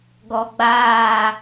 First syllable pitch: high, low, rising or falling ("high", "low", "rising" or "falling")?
low